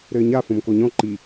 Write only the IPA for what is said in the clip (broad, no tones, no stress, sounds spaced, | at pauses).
ɾ ɘː ɲ a f õ m k o ɲ ɔ̃ ǃ i